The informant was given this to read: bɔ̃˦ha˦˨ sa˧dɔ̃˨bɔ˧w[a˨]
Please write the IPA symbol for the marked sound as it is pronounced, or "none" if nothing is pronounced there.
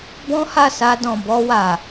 a˨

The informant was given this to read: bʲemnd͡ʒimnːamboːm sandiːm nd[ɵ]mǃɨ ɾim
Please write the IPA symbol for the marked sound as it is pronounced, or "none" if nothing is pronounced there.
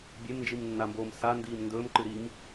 ɵː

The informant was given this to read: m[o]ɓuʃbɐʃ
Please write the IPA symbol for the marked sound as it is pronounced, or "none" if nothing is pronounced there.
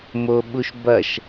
o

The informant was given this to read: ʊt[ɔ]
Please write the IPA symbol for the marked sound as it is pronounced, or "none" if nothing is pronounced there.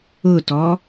ɔ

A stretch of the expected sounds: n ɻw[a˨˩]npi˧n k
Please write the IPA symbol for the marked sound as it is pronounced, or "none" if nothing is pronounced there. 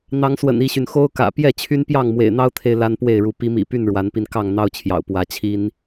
a˨˦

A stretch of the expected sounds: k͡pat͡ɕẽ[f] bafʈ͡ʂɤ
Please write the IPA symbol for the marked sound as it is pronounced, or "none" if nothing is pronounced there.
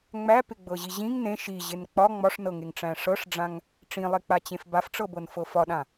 f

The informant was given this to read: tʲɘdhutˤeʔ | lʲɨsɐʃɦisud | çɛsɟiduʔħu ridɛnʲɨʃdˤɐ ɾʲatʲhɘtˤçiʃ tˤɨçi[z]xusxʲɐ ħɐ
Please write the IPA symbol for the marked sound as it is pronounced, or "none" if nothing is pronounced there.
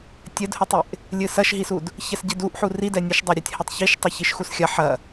ʃ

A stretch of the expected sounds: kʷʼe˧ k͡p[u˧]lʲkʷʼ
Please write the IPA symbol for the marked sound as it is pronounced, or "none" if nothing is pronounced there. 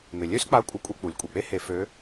u˩˧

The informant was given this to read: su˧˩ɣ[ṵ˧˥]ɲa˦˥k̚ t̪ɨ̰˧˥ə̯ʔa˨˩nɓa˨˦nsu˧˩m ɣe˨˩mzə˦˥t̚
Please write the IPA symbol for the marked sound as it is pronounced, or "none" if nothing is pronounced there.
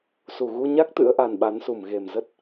u˧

